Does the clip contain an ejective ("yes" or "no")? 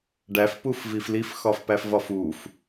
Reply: no